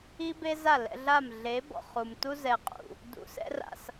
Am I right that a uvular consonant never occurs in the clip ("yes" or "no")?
no